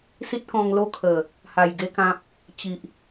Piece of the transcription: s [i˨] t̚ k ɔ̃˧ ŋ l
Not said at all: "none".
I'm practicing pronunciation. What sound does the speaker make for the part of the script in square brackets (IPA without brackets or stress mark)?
i˦